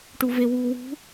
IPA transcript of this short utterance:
ʈ u v e w uː w ṳ

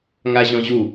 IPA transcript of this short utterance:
ŋ a ʑ ɔ̃ ʑ u

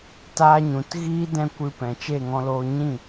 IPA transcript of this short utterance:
t aː˧ ɲ ũ˨ t ɣ iː˦ d ɛ̃˦ kʷ ɨ˧ p ɛ̃˨ t͡ʃ e˦˨ ŋ ɔ̃˧ l oː˧ ɲ ĩ˦˨

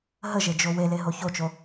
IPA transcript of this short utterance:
ɦ ə ʒ e d͡ʒ o w e l e ɦ o ç o t͡ʃ o

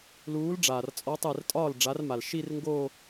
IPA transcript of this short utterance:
l uː˨˥ l ɖ͡ʐ aː˩ r t͡sʼ ɔ˨˥ tˤ ɛ˧˩ r tʼ ɒː˥˩ l ɖ͡ʐ a˨˥ r m a˩ l ʃ i˥˧ r ŋ ɡ oː˥˧

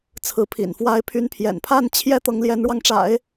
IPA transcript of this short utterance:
t͡sʰ ɹ̩˧˥ pʰ ḭ˨˩ n f w a˧˥ ɪ̯ pʰ y˧˥ n pʰ j ɛ̰˨˩ n pʰ a˥˩ n t͡ɕʰ j ɛ˥ t̪ ɤ˧˥ ŋ l j ɛ˧˥ n ɻ w ɑ˧ ŋ ʈ͡ʂ a̰˨˩˦ ɪ̯

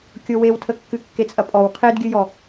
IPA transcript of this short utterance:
kʲ o w e w tʰ ə kː ɨ kː e t͡sʼ ɐ pʼ ɔ w qʰ e d ɡʲ ɨ j ɔ

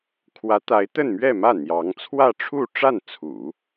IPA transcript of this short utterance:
kʰ w ä˧˥ t̪ a˧˥ ɪ̯ t̪ ə˥˧ n m ɥ ɛ˥˧ m ä˥˩ n̪ j ɑ˧˥ ŋ t͡sʰ w ä˥˧ ʈ͡ʂʰ u˥˧ ʈ͡ʂ a˥˩ n t͡sʰ ṵ˨˩˦

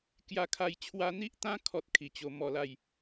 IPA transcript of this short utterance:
k j a˦ kʰ a˥˧ j t͡ɕʰ w a˧ n̪ i˦ ʔ t̪ ã˦ kʰ ɔ˦ t̚ kʰ i˨˩ t͡ɕ o˧ m ɔ˧ l a˥˧ j

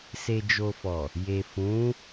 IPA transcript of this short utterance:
s e˨ d͡ʒ o˨ f ɔ˨ | j e˨ f ũ˨˦

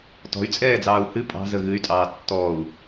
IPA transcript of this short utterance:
t ɔ̤ y̯ t͡sʼ ɛː d͡z ɑː u̯ h ɨ pʼ ɑ̤ z ə ɣ ɨ y̯ tʼ ɑː tː ɔ u̯

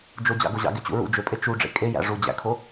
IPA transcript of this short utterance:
d͡ʒ o d͡ʑ ɑ̰ ɡ o ʑ ɑ̰ ɡ e t͡ɕ ṵ ɹ ṵ d͡ʒ ø pʼ e t͡ʃ u ɖ͡ʐ ḛ kʼ e j æ̰ ʐ u d͡ʑ æ̰ kʰ o

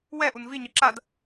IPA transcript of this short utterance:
w ɛ ʔ u n v i ɲ ɯ ǁ a d

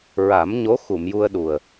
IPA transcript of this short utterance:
ɹ a˨˩˦ m ɲ o˧˥ x u˨˩˨ m j u˧ ə̯ ɗ u˨˩ ə̯

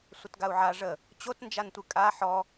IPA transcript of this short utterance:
sʷ ə t ɡ a u̯ ʕ a ʐ ə | t͡ɕ o t n d͡ʒ a n tʷ ɨ kʼ a ħ ɔ

